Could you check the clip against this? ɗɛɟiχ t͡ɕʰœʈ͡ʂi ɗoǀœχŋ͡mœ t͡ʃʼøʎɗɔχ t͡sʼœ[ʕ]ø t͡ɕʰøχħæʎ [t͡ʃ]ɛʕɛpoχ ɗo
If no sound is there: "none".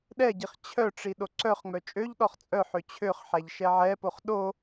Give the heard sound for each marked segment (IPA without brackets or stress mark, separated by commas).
ħ, ʃ